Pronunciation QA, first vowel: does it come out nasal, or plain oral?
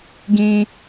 nasal